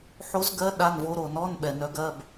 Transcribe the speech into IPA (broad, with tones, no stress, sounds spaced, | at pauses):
ħ o˧˥ z ɡ ɜ˧˥ ɗ a˧˥˧ n v o˧˥ ɾ o˨ n ɔ˧˥˧ n ɓ ɛ˨ n œ˧˥ ɡ ɜ˧˥˧ b